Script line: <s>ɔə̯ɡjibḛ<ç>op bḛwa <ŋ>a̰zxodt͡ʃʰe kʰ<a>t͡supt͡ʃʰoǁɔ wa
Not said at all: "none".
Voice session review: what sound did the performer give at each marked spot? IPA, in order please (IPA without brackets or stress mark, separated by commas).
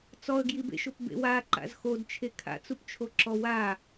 t͡s, ʃ, ǃ, a̰